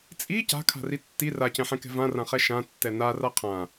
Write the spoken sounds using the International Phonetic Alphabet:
t͡sʼ i c a̤ kʰ a̤ r i tː i r a c ɛ̃ ħ ɛ̃ k ɛ̤ v ã r ã χ ɛ ʃ ã tː ɛ n a r a qʰ ã

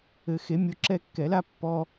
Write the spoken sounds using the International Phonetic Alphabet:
ɘ˨˩˦ x e˩˥ mʲ o˩˥ ǁ ɛ˦ kː ɛ˨˩˦ l a˦ pː ɔ˦

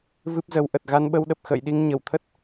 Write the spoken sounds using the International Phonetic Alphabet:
v ɨ˦˥ p̚ z ə˨˦ w ʔ ə˨˩ t̚ ɣ a˧ n ɓ ə˧ w ɗ ə˨˩ p̚ x ə̰ː˧˨ j ɗ i˧ ŋ ɲ ə˧˩ w t̪ʰ ə˦˥ t̚

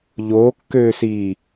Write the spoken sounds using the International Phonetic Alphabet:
ʎ oː kː øː s iː

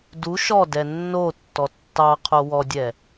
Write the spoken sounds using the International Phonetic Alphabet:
d u ʃ ɔ d ɛ nː o tː ɔ tː ɑ qʰ o w ɔ dʲ ɛ

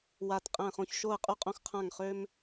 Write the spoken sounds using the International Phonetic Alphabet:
w a˧˩ t qʼ æ̃˧˩ χ õ˧˩ ç ʃ o˧˩ ə̯ qʼ u˧ qʼ õ˧˩ x qʰ ã˧˩ ŋ χ ø˧ m

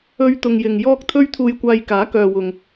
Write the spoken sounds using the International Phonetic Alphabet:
ɵ˧ ɥ t̪ ʊ˨ ŋ j ɪ˨ ŋ j ɔː˧ k̚ t̪ʰ ɵ˧ ɥ t̪ʰ uː˨ j kʷ aː˨ j k aː˨˥ k œː˨ w ʊ˨ ŋ

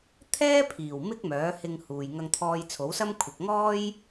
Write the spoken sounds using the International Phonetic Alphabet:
t̪ʰ ɛː˥ pʰ iː˨˩ w m ɪ˥ k̚ m œː˨˥ h ɪ˧ ŋ h uː˨ j ŋ ɐ˧ ŋ t̪ʰ ɔː˧ j t͡sʰ o˨˥ w s ɐ˥ m kʷʰ ɪ˨ k̚ ŋ ɔː˥ j

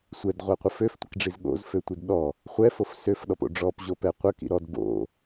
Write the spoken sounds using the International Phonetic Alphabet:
sʷ ɛ d ʁʷ a qʷ ə f ø f tʷ ə k ɖ͡ʐ i z ɠ o̰ z f ø tʷ i d ɗ ɔ | χʷ ɛ f o f s ø f ɗ ɔ p o̰ ɖ͡ʐ ɔ p ʑ o p ɛ qʷ ə k ḭ ɾ ɔ d b o̰

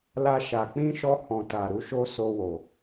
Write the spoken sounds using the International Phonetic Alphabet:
l a˧ ʃ a˨ k͡p ĩ˧ ʃ ɔ˧ h ɔ̃˨ t a˨ ɾ u˧ ʃ o˦ s o˧ w o˨

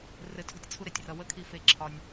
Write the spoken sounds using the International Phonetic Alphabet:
r ɘ˧ tʰ o̤˦ tʲ t͡sʰ u˦ ɾ e˨ tʲ r ʌ˧ w ə˦ kʰ i˧ f e˧ ǁʰ ɒ˧ nʲ

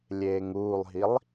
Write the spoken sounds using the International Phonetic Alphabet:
lʲ eː ŋ uː lˠ ɦ i lˠ

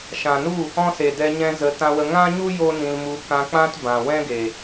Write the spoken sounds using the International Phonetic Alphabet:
ʃ ã˨ n u˦˨ | ɔ̃˦ s e˨ d ɛ˧ ɲ ɛ̃˧ z ə˨˦ t ã˧ w ə˧ ŋ ã˦ ɲ u˦ j o˦ n ĩ˧ l m u˧ k ã˧ k͡p ã˦ t b ã˨ w ɛ̃˦ ɡ e˨

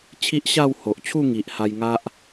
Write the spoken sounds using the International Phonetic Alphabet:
t͡ɕʰ i˦ ʔ ɕ a˥˧ w h o˨ ʔ t͡ɕʰ u˥˧ ŋ i˨ ʔ h a˧ j ŋ a˦ ʔ

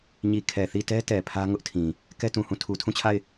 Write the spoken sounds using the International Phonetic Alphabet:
ɲ i˨ kʰ ɛ˨ θ i˦˨ t ɛ˦ t ɛ˨ pʰ ä˦ ŋ ʊ˦ ʔ tʰ ĩ˨ | k ɛ˦ t ũ˨ h ũ˦˨ tʰ u˨ tʰ ũ˦˨ t͡ɕʰ a˦˨ ɪ̯

